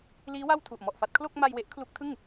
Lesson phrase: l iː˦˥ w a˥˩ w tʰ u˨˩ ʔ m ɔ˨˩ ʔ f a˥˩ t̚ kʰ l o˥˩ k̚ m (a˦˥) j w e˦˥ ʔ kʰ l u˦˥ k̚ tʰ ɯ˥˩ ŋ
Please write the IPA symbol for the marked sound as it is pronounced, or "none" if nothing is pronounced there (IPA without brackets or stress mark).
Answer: a˧